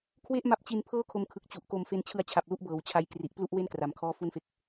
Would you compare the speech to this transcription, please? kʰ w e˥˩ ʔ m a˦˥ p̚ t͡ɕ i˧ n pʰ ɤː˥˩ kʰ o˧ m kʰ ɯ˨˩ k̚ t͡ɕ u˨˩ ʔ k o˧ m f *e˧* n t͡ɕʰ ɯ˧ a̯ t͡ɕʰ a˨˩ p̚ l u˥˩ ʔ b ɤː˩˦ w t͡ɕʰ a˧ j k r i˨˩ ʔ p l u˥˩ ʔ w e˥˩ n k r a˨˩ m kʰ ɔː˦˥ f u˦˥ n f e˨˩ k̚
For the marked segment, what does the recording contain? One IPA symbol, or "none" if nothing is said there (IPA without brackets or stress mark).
e˧